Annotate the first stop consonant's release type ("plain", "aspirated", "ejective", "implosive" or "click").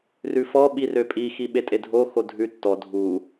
implosive